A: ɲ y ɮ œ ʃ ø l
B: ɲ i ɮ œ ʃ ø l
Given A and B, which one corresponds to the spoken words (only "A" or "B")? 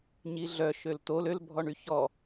B